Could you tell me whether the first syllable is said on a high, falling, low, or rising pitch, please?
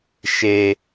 low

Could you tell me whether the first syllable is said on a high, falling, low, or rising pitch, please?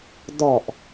low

